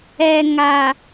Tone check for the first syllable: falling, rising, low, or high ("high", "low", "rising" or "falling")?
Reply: low